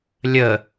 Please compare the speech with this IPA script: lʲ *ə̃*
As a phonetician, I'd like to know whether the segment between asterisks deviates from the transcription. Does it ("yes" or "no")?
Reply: yes